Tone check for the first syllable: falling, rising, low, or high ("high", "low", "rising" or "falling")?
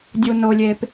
low